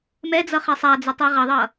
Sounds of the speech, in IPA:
m ɛ d͡z ʌ χ ɛ sˤ a d͡z ɯ tˤ i ʁ ʌ ðˤ ʌ

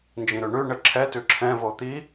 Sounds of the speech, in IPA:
n d͡ʒ ĩ ɾ ʉ ɳ ʉ ɳ ɘ ǁʰ ɛ t ʉ ǁʰ ɛ̃ v o t̪ i

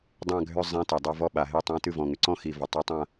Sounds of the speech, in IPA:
dˤ ã˦˨ ɡʱ ʏ˦˨ zˤ ẽ˧˥ t e˩ dˤ a˦˨ v ɔ˦˨ ɓ a˩ ɦ e˦˨ tˤ ã˧˥ t ɨ˦˨ v ɔ̃˩ ŋ ʏ˩ ǀ ɔ̃˦˨ x i˩ v ɔ˩ tˤ a˧˥ tˤ ã˦˨

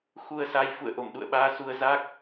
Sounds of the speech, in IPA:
x u˧ ə̯ s a˧ j f ṵ˧˨ ə̯ ʔ o˧˩ m ɗ ṵ˧˨ ə̯ ɓ aː˧ s u˧ ə̯ z a˦˥ k̚

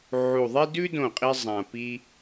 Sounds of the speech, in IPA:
ʕ u˨˩ ðˤ e˥ d ʉ˥ d õ˥˩ qʼ i˥ zˤ ã˨˩ p i˥

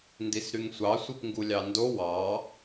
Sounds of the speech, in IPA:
n d i s ɾ y ŋ sʷ ɑ sʷ i p ŋ ɡ u lʲ ɑ n d o w ɑ

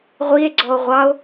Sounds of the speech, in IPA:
ʁʷ i e̯ ɡ͡ǀ ɔ o̯ ʁʷ ɑ o̯

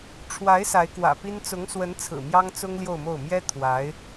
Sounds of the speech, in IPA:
ʈ͡ʂʰ w a˧˥ ɪ̯ s a˧˥ ɪ̯ k w ä̰˨˩ p i˥ n t͡s ʊ˧˥ ŋ s w ə˧˥ n t͡sʰ ɹ̩˨˩ m j ɑ˥ ŋ t͡s ʊ˥ ŋ l j o˥˧ ʊ̯ m o˥˩ ʊ̯ m j ɛ˥ t̪ʰ w a˧˥ ɪ̯

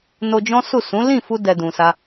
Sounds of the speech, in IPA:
n o˧ d͡ʒ ɔ̃˦ s u˦˨ s ũ˨˦ l ĩ˦˨ f u˧ d ɛ˧ d ũ˨ s a˧

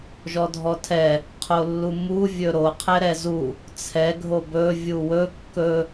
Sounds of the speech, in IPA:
ʒ ɔ dʱ ɔ tʰ ɛ | qʰ o lː u m u vʲ ɵ ɾ o qʰ ɛ ɾ ɛ z u | t͡sʰ ɛ ɡʱ o b ɵ vʲ u w ɵ kː ɵ

